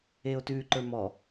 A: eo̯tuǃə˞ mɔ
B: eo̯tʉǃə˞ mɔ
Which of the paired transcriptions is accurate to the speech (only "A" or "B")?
B